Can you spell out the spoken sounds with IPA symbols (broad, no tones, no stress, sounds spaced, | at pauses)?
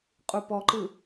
qʼ u p ɔ ǃ ɯ